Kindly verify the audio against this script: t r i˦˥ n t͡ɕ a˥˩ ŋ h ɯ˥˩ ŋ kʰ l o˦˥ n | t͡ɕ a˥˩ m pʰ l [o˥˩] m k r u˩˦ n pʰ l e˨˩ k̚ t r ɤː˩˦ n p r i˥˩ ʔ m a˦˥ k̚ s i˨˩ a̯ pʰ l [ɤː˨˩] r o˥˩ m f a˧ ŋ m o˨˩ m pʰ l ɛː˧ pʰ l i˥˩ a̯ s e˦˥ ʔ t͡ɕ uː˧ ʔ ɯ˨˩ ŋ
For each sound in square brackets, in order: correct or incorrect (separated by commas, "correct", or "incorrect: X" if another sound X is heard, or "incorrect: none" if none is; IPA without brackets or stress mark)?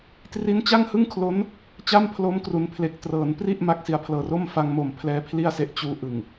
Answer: incorrect: o˦˥, correct